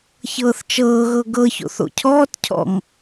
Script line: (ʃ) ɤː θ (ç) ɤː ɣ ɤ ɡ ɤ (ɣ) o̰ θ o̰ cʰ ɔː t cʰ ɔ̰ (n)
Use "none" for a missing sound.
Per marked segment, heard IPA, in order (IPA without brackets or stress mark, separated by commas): ç, t͡ʃ, ç, ŋ